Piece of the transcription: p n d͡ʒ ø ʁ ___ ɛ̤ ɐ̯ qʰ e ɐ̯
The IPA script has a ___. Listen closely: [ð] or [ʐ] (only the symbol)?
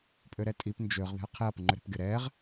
ð